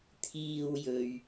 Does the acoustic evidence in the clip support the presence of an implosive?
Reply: no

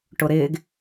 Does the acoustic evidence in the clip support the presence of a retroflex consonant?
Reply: yes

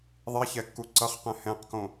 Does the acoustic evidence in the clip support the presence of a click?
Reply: yes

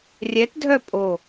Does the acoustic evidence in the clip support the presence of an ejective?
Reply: yes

